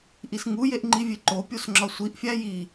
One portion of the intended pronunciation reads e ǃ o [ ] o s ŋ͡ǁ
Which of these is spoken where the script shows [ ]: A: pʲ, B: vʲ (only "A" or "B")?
A